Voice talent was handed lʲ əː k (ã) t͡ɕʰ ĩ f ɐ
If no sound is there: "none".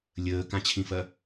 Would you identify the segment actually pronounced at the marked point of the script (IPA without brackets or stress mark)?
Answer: ã